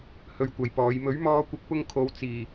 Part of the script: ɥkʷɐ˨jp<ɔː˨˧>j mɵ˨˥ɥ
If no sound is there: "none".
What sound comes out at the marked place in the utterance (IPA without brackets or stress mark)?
ɔː˨˧